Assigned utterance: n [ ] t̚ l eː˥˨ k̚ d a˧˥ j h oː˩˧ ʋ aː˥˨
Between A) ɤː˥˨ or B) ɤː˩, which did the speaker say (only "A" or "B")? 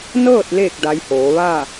A